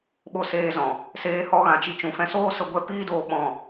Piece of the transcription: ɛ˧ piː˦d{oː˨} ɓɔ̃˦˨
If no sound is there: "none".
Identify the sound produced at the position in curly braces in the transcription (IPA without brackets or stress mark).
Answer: oː˧